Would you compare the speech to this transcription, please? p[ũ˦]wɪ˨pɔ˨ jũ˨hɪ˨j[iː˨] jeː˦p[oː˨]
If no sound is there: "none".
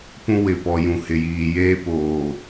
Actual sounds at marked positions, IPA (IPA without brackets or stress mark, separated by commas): ũ˦, iː˨, oː˨